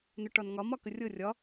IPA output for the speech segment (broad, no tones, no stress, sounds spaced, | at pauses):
n ɵ ʈ ɒ n ŋ ɒ m ɒ k ə rʲ ɤ rʲ ɒ